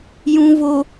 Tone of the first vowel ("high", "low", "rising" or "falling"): low